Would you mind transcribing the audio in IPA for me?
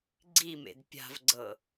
ɡ͡ǀ i m ḛ d pʲ a̤ v ɡ͡ǀ ɤ

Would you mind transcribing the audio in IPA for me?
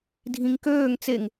dʱ ĩ ŋ k øː ŋ t͡s e ŋ

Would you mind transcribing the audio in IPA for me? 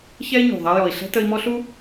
ç ɛ˥ i̯ ɲ ṳ˩ ðˤ ɛ˦ j ɔ˩ i̯ ɬ ɛ̤˥ t ə˦ i̯ m ɔ˥ ɬ u˥

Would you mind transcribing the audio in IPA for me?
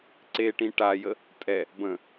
ǀ e ʈ ĩ ʈ a j ə | tʼ ɛ | b ə̃

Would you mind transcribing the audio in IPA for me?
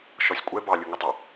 ʃ ɔ sʲ kʷʼ ɛ b ɑ lʲ ɯ ŋ ɯ tˤ ɑ

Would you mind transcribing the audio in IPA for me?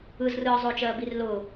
ɯ z r ɯː zˤ ʊː t͡ʃ ɜː b i r l ʊː

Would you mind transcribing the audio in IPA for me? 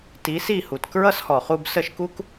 t i˩˥ s i˥˩ h u˩ t k ɹ ʌ˥ s h ɔ˩ χ u˧ b s ə˥˩ ʃ k u˥ k

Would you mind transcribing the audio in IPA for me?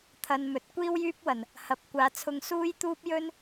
t̪ʰ ɐ˨ n m ɵ˨ t̚ kʷ iː˥ w j yː˥ p̚ w ɐ˨˩ n | h ɐ˨ p̚ kʷ aː˨˧ t͡sʰ ʊ˧ ŋ s uː˥ j t̪ uː˥ p̚ j ɵ˥ n

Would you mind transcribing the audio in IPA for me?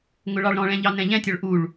ŋ ʊ ɭ ɑ ɭ ɾ ɔ̃ ɭ ɛ̃ ʎ ɑ n ɛ̃ ʎ ɛ̃ tʲ ɔ ɭ ʔ u ɭ

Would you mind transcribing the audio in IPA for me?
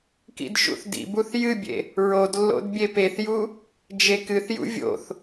k ḭ d ʃ ṵ θ d ḭ b u θ j ɨ bʲ ḛ | ɹ o d lː o̰ d bʲ e p e θ j u | d͡ʒ e k ɨ θ j ṵ vʲ o̰ θ

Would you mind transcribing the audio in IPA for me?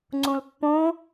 ŋ͡ǀ ũ l pː õ

